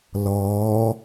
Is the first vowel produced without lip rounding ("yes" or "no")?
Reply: no